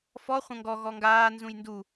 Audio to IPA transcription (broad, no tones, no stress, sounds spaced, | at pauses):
f ɔ χʷ ɐ̃ ŋ ɡ ɔ ɣ ɔ ŋ ɡ aː n z ũ j n d u